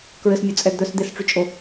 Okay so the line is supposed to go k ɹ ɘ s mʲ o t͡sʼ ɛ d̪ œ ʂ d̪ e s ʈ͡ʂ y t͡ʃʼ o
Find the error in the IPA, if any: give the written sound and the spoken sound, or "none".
ʂ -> s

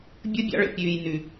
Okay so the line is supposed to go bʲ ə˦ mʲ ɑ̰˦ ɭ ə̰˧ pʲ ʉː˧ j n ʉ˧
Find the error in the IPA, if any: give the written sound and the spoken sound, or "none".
mʲ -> bʲ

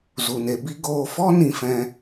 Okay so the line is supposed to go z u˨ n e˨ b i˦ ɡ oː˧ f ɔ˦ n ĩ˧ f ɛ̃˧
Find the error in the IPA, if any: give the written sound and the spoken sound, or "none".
none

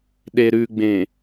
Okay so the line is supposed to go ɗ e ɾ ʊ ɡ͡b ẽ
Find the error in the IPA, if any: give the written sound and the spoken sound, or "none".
ʊ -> ʉ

